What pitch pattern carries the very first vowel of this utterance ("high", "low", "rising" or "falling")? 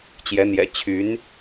rising